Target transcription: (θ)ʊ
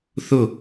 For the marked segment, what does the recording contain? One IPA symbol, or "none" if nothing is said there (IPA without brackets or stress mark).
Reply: θ